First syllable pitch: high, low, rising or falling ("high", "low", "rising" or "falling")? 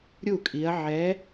falling